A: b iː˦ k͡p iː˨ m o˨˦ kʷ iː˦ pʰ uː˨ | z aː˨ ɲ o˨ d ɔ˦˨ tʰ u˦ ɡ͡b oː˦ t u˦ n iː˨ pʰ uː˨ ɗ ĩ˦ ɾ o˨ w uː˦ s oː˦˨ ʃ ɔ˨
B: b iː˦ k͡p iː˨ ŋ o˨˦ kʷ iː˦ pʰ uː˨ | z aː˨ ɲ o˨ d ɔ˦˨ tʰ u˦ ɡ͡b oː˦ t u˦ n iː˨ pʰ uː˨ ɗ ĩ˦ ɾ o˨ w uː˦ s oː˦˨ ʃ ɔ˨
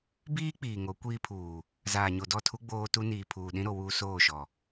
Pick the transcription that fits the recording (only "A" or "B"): B